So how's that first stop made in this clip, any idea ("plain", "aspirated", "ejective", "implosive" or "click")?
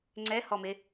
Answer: click